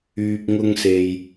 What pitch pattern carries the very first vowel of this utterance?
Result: low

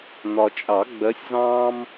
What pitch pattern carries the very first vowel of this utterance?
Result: low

